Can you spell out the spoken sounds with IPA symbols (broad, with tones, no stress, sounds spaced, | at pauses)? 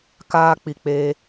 k aː˧ k͡p i˨ k͡p e˧